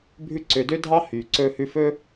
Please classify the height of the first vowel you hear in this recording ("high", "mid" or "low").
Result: high